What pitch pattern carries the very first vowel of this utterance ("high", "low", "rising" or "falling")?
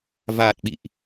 low